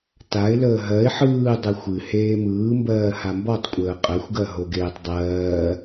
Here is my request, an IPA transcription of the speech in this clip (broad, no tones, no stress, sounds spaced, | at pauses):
t a ɪ̯ l əː ɦ ɜ ɪ̯ ħ ɯː dˤ ɨ xʷ ɨ h eː m ɯː m b ɜː h a m b ɔ tˤ kʷʼ əː qʼ ɜ xʷ ɡ ɜ ɦ o ɡ eː tˤ dˤ ɜː